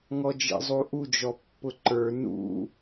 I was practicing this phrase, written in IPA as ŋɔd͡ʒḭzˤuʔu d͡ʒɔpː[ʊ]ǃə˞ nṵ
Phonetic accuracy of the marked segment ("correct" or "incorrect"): correct